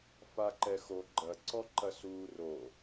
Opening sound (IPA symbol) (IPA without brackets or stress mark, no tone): f